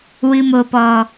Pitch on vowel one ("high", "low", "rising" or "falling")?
low